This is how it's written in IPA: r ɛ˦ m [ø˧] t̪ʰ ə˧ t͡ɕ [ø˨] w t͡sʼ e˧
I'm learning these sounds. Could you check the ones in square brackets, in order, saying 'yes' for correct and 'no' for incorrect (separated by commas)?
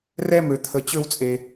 yes, no